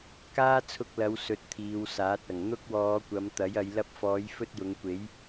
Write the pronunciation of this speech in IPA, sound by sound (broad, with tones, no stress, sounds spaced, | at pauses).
k aː˥ t͡sʰ ʊ˧ k̚ l ɐ˨˧ w s ɵ˧ t̚ t̪ʰ iː˨˧ w s aː˨˥ t̚ ɐ˨˩ ŋ n̪ ʊ˥ k̚ w ɔː˨˧ kʷ ɐ˨˧ m t̪ ɐ˨˥ j ɐ˨˧ j l ɐ˧ p̚ f ɔː˨˧ j f ɵ˥ t̚ j ʊ˨˧ ŋ kʷ e˨˥ j